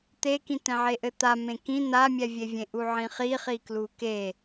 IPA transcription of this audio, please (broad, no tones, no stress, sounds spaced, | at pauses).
t̪ e k ĩ t̪ ɛ̃ ʕ e ʔ ɘ t̪ a m ẽ k ĩ n̪ a mʲ ɛ vʲ e vʲ ẽ ʔ u ʕ ĩ χ i χ i k l u k e